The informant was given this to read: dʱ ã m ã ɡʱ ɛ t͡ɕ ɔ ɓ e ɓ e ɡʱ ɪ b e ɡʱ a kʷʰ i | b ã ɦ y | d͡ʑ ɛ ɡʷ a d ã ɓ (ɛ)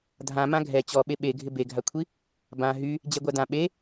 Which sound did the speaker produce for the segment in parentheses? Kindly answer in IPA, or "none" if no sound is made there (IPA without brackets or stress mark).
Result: e